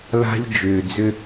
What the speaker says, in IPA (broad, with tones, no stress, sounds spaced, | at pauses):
l a̤˦ ʎ d͡ʒ ʏː˨ d͡z ʏ˦